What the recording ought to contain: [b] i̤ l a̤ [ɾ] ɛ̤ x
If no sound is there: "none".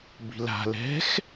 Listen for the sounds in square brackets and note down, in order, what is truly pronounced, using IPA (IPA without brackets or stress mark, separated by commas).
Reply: b, l